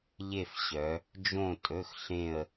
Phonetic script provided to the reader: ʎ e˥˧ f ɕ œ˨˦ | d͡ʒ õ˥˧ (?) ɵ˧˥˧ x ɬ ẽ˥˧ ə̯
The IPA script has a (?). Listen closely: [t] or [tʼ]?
tʼ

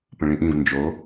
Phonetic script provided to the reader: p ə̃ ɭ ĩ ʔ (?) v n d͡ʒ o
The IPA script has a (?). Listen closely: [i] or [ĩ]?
ĩ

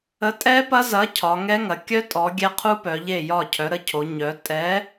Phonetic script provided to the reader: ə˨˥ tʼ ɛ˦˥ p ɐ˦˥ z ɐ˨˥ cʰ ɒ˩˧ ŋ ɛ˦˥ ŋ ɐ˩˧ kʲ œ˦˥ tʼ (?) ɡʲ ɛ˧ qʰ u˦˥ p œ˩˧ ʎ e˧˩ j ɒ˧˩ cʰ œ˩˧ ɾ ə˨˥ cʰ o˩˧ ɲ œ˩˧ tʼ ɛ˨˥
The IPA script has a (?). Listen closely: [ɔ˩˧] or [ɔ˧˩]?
ɔ˩˧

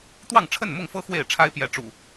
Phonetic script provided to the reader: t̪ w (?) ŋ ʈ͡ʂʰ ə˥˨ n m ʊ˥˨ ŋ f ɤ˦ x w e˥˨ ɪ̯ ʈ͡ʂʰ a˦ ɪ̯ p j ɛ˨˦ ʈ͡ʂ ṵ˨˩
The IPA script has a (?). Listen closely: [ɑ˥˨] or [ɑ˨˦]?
ɑ˥˨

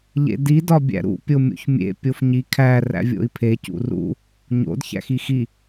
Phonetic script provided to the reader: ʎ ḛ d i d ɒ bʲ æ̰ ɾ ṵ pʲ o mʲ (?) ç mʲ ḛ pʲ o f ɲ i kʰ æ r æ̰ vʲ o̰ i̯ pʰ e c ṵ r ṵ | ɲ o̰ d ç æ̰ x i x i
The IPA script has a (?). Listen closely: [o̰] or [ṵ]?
o̰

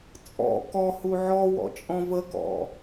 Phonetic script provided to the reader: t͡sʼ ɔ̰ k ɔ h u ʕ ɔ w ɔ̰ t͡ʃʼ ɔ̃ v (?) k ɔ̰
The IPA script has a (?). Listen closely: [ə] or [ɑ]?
ə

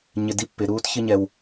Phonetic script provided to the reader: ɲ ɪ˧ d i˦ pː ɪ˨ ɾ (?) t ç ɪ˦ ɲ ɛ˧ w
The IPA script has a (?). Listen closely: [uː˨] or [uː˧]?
uː˧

